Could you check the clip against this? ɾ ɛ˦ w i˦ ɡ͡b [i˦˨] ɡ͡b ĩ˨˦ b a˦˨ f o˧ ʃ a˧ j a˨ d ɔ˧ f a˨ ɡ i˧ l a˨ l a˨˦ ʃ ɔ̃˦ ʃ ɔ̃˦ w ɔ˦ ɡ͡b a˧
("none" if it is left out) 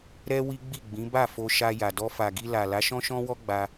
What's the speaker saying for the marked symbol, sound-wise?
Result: i˦˨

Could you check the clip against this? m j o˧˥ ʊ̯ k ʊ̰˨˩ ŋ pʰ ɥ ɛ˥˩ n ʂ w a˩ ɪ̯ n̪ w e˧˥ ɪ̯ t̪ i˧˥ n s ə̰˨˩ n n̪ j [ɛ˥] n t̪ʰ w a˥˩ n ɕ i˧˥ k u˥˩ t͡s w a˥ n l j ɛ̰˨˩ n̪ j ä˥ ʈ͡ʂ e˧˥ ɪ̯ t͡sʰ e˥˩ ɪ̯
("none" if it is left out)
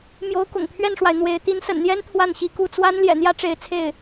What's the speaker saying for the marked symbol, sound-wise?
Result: ɛ˥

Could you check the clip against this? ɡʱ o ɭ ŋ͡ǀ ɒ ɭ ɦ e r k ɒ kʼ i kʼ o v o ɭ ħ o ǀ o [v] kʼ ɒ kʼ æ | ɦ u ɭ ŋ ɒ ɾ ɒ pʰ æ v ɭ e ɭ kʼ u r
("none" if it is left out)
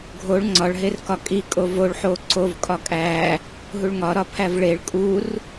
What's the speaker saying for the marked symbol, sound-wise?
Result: v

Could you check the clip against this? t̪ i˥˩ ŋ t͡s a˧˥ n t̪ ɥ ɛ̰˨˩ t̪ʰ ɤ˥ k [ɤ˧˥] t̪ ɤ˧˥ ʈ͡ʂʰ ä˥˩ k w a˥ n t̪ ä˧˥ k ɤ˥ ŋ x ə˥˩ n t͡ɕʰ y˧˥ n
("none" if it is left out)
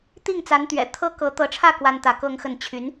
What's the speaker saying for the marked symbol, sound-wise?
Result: ɤ˧˥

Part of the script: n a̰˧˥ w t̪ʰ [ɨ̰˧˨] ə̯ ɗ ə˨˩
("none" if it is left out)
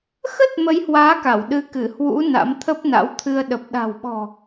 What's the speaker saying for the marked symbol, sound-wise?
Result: ɨ˧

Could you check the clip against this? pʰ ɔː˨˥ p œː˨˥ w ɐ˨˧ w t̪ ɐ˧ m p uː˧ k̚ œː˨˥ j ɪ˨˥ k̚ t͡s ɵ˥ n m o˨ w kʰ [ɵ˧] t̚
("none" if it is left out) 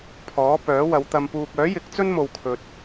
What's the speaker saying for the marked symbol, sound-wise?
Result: ɵ˨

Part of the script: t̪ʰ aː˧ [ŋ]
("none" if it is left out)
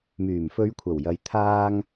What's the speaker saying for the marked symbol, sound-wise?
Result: ŋ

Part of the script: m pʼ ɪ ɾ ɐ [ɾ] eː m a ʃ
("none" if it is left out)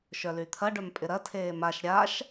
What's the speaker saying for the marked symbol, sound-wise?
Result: tʰ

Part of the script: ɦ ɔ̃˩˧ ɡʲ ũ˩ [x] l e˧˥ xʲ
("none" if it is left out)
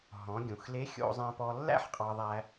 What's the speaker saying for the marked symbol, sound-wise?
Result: x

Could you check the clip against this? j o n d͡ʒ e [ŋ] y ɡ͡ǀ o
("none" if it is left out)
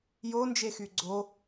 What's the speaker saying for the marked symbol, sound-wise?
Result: x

